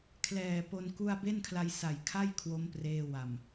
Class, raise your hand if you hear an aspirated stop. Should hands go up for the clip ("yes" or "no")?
yes